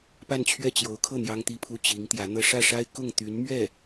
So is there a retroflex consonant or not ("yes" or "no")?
yes